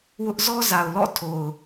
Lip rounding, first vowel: rounded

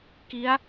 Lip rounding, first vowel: unrounded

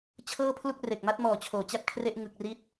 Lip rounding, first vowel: unrounded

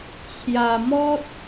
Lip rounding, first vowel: unrounded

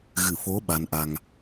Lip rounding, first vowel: unrounded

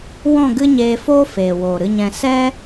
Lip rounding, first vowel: rounded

